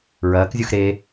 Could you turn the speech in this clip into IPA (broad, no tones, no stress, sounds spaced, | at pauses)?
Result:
ɹ ɐː k zʲ u x ɾ e